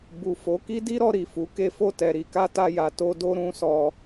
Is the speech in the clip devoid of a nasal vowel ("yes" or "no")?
no